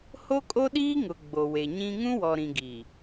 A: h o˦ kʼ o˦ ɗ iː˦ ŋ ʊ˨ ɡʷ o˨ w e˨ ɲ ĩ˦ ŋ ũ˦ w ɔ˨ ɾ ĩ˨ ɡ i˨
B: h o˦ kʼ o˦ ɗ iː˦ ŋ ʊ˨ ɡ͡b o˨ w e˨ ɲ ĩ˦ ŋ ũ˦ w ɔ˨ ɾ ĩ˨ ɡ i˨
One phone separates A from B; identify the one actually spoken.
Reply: B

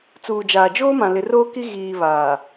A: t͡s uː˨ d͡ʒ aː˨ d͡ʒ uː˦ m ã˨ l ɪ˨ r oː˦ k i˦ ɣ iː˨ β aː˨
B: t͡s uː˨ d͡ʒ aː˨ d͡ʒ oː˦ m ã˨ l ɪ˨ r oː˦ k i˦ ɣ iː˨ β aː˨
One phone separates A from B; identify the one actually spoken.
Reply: B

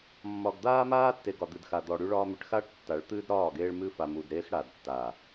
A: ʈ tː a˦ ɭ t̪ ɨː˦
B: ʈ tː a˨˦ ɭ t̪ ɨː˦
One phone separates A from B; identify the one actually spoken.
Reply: B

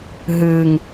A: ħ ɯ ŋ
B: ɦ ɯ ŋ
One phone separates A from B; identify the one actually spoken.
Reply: B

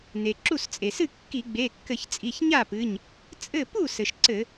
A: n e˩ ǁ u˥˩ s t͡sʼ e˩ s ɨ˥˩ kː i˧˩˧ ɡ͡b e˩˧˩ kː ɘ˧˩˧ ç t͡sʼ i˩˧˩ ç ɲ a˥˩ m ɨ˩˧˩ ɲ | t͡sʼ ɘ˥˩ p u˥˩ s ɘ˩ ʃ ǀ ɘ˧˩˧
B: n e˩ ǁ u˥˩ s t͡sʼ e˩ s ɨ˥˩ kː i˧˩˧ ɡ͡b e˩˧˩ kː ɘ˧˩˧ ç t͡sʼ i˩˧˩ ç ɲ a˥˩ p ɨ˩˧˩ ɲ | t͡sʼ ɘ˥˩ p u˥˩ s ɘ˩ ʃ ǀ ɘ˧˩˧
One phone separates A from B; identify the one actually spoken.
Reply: B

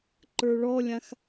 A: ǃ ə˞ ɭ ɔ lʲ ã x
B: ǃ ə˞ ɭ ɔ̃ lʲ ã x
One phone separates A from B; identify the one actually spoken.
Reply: A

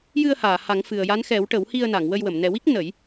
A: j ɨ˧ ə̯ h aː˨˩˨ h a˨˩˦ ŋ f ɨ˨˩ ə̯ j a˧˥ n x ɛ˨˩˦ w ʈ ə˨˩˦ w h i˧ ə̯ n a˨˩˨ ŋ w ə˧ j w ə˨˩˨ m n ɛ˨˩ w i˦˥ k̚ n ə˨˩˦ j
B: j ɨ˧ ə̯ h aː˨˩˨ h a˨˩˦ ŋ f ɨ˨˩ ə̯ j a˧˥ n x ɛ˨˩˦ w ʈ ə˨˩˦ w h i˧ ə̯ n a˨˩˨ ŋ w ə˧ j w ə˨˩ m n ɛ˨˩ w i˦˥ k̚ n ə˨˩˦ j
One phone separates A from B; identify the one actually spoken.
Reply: A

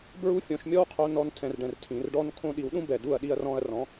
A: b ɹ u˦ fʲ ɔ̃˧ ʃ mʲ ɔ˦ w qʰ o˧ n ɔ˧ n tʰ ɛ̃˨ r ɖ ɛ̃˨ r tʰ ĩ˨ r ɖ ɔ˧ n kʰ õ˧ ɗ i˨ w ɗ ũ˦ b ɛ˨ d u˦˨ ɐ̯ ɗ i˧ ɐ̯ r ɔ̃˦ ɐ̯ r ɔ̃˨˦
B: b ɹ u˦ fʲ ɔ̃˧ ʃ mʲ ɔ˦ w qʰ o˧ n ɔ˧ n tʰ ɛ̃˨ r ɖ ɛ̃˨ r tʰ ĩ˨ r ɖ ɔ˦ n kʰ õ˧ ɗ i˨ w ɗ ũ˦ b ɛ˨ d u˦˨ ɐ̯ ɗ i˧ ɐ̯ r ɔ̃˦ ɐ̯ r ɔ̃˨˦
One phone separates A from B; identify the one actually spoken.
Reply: B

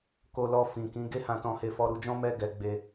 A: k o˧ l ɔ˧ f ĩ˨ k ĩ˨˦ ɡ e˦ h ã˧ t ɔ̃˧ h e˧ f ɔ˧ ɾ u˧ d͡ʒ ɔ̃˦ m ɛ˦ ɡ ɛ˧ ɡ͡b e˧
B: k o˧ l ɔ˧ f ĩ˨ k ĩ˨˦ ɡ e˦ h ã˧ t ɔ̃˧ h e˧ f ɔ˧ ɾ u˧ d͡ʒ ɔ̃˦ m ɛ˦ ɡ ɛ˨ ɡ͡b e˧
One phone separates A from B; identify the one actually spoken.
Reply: A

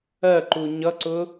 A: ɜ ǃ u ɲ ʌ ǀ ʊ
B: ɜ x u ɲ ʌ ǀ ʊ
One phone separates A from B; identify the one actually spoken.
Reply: A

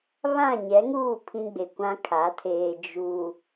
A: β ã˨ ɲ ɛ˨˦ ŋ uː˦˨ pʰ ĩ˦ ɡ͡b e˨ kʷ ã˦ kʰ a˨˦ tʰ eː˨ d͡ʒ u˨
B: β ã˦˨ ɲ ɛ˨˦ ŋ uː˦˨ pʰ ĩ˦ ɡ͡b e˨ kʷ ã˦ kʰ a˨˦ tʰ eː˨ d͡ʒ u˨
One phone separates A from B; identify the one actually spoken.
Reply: B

